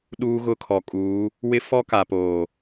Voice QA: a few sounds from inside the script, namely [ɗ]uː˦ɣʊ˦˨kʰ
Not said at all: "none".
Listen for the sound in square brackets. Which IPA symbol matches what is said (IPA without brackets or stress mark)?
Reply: ɗ